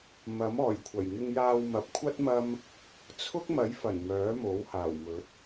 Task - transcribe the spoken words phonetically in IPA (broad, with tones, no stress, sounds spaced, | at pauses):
m ɐ˨˥ m ɔː˨˩ j kʷʰ ɐ˨˩ j ŋ ɪ˧ ŋ j aː˧ w m ɐ˨˥ p̚ kʷʰ ɐ˥ t̚ m ɐ˥ m | t͡sʰ ʊ˥ k̚ m ɐ˨˥ j f ɐ˨˩ n m œː˨˥ m o˨˥ w h aː˨˩ w m ɵ˨˥ t̚